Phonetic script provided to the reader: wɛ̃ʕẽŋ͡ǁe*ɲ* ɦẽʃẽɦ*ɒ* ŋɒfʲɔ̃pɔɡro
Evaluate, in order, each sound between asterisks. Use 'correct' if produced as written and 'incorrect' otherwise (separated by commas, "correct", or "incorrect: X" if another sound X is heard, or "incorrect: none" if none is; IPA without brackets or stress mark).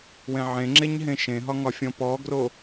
correct, correct